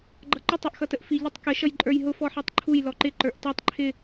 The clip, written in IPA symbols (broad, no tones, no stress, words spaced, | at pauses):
ɡ͡ǃʌǃʊtˤ ɔʔxʌtəʔfi ʎɪtˤkə ʃʌjǃʼə˞jɦʊ fɔħitˤǃʰuj lɔǃɪ ǃə˞ʔtɑtˤ ǃʰɪ